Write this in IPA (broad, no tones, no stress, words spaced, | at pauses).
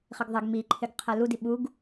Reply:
χɪɡðˤɪɡ miǃʰɪɡ qʰɛludi ɓuɡ